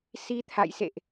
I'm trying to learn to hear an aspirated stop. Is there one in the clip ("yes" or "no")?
yes